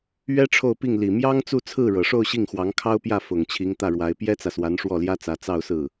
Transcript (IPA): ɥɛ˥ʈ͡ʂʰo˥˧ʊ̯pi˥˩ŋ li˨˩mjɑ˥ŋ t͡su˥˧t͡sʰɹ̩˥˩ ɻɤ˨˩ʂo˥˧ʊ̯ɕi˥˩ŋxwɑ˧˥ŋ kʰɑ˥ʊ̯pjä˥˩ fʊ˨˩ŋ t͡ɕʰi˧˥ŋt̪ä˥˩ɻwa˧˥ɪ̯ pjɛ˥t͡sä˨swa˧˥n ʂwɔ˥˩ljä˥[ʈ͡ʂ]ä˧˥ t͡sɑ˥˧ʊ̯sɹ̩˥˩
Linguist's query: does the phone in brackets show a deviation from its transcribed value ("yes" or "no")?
yes